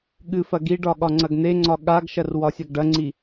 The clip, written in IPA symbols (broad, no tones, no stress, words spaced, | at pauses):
ɠɨf ɐɡiɖɒ ɠɒŋ͡ǀɐɡn̪eŋ͡ǀɒ ɠaɡʃɐr wɒsʲɐɡɖɐŋ͡ǀi